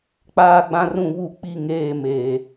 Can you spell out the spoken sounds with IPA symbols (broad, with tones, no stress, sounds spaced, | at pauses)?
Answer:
k͡p aː˦ ɡ͡b ã˦ r ũ˦˨ β u˦˨ k͡p i˦˨ ŋ eː˦˨ m eː˨